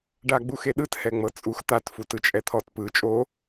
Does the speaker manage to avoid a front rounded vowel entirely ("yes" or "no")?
yes